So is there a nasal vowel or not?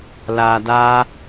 no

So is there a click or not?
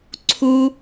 yes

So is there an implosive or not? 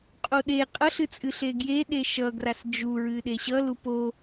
yes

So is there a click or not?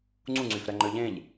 yes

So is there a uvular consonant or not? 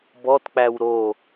no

